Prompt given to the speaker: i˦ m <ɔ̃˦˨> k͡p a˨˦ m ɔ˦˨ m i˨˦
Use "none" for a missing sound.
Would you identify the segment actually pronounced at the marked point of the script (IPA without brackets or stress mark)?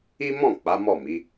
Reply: ɔ̃˦˨